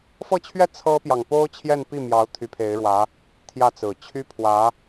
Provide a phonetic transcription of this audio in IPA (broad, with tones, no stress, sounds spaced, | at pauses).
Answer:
f ɤ˥˧ t͡ɕʰ ɥ ɛ˥˩ t͡sʰ ɤ˥ p j ɑ˨ ŋ p o˥ ʊ̯ t͡ɕʰ j ɛ˥˧ n p i˥˩ m j ɑ˧˥ ʊ̯ t̪ʰ y˧˥ pʰ e˧˥ ɪ̯ ɻ w ä˧˥ | t̪ʰ j ä˥˩ t͡s ɹ̩˨˩ t͡ɕʰ y˥ pʰ w ä˧˥